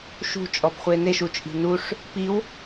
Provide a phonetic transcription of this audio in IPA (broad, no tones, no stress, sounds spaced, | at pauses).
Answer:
ʃ ṳ t͡ʃʼ ɔ b χʷ e n e ʃ u t͡ʃʼ i̤ n u ʂ | p i w